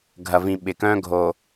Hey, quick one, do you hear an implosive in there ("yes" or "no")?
yes